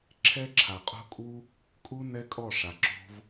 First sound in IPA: ǁʰ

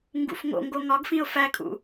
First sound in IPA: ŋ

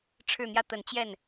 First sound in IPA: ʈ͡ʂʰ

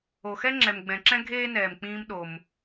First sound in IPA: o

